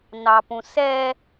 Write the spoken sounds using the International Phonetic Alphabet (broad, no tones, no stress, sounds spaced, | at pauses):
n ɑ p ũ s ɛ